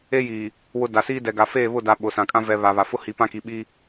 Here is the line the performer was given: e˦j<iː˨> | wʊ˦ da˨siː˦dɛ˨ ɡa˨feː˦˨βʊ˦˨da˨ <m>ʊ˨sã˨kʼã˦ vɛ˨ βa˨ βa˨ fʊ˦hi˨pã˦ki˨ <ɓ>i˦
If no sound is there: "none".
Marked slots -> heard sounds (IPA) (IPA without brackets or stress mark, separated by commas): iː˨, ɓ, ɓ